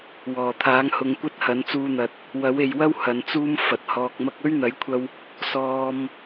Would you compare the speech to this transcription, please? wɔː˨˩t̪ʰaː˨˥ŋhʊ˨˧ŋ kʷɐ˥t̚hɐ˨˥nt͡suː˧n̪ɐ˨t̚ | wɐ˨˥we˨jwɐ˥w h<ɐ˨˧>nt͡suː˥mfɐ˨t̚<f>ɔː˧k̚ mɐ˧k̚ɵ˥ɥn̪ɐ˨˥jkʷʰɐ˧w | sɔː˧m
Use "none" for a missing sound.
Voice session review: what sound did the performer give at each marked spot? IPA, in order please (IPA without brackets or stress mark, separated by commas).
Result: ɐ˨˧, h